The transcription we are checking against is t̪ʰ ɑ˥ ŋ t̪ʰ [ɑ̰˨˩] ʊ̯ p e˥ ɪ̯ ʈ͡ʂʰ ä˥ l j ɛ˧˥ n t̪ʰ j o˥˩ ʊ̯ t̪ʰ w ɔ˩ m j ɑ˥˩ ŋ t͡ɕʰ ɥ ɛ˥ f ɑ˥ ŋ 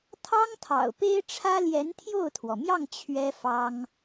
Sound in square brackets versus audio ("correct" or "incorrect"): correct